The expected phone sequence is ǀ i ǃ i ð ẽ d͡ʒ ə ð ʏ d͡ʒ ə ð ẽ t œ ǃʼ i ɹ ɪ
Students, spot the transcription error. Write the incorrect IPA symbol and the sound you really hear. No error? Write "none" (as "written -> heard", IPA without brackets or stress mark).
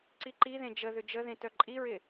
none